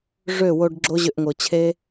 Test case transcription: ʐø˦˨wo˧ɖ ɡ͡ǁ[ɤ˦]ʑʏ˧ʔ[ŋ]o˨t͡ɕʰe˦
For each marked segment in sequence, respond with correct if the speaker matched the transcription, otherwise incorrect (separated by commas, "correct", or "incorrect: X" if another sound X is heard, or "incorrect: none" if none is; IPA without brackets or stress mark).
incorrect: o˦, correct